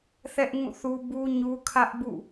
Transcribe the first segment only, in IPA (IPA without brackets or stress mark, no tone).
θ